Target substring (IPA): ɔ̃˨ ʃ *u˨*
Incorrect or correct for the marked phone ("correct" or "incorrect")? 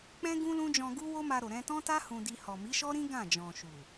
correct